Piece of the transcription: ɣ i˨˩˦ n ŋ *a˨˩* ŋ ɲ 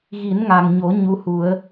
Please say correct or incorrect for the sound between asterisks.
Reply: correct